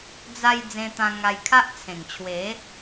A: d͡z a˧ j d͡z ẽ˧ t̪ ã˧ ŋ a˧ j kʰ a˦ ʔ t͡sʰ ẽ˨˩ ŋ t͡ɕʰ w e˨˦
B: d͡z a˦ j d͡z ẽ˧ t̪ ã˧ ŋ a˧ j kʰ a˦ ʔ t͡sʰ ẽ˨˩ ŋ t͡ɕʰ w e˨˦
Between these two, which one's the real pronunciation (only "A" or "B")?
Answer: A